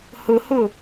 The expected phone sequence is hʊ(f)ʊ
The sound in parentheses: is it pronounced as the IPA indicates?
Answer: no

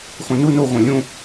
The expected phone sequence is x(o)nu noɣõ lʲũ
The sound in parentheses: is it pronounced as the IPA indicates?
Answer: no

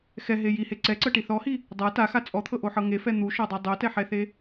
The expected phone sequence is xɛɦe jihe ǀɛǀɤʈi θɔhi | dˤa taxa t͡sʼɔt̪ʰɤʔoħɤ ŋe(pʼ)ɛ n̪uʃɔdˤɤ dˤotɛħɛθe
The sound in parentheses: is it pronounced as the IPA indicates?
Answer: no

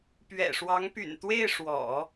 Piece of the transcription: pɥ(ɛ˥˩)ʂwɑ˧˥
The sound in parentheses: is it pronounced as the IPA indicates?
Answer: no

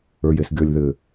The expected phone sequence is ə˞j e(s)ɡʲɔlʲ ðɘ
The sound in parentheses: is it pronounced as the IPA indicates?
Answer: yes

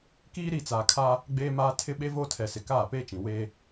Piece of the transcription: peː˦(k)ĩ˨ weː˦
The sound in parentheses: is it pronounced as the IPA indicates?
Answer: no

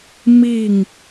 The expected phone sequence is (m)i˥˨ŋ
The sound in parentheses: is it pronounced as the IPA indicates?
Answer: yes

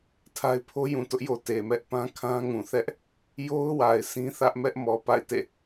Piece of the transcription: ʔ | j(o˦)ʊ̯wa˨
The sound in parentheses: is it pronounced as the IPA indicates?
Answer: yes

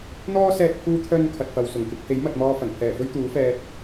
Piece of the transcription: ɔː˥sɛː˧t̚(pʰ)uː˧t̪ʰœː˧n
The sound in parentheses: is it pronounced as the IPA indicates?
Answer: yes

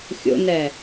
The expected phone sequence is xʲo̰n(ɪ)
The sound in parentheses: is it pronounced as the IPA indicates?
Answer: no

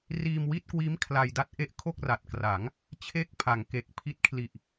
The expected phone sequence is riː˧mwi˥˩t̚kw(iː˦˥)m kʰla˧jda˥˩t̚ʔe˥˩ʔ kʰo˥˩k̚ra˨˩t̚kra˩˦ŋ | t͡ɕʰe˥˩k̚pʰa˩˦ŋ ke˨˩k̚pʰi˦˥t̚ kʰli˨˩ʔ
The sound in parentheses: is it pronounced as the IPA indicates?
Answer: yes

